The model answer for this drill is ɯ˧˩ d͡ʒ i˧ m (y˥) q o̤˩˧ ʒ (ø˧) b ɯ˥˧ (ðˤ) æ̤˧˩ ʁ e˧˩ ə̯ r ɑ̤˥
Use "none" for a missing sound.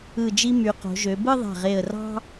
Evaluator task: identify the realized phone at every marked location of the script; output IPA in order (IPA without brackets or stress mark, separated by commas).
y˩˧, ø˩˧, ðˤ